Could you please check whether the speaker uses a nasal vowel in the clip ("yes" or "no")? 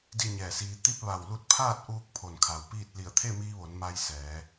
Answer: no